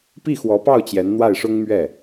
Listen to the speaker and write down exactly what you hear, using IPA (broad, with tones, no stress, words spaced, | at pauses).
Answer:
pi˥˩xwɔ˧˥pɑ˥˩ʊ̯ t͡ɕjɛ˧˥nn̪wa˥˩ɪ̯ʂʊ˥ŋmɥɛ˥˩